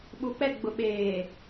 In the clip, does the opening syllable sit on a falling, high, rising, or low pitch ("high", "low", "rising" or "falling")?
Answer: low